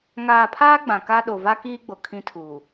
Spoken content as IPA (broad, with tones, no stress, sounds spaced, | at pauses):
ŋ aː˨ pʰ aː˦ ɡ͡b ã˨ k a˦ ɗ o˨ v a˦ k iː˦ ɡ͡b o˨ kʰ ĩ˦ tʰ uː˨